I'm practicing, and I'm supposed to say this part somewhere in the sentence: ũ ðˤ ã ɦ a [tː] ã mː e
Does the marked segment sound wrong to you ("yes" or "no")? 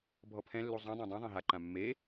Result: yes